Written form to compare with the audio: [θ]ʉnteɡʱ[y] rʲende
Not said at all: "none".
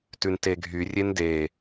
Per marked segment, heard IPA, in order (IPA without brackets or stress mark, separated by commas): t, y